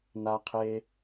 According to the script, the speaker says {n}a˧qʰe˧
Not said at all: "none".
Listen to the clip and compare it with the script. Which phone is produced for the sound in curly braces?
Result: n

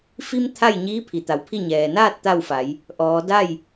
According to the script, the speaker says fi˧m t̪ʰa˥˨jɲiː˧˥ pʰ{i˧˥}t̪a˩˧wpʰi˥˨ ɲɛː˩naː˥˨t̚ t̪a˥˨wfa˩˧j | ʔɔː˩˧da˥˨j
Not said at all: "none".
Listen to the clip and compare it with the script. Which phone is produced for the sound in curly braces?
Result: i˩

